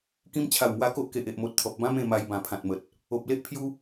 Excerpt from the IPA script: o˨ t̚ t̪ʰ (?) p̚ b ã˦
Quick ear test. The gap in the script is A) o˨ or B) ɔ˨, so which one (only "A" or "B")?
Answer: B